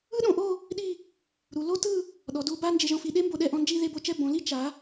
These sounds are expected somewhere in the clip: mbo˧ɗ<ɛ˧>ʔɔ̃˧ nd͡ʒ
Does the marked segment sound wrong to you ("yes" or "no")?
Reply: no